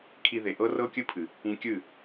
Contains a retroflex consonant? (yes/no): no